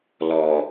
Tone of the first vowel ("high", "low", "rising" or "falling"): low